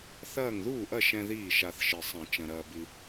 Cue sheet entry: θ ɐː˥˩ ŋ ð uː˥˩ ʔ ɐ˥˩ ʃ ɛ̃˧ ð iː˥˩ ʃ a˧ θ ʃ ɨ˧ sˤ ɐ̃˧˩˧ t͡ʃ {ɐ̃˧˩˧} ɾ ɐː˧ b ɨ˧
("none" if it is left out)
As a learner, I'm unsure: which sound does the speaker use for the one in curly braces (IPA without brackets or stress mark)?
ɐ̃˧